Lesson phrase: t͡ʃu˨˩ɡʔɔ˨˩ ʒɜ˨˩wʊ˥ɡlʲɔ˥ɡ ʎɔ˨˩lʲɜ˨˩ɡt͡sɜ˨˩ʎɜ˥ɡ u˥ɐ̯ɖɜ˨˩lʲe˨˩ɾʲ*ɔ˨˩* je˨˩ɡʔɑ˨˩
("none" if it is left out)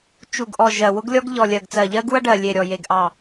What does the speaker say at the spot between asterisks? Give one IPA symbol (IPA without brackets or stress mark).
ɔ˨˩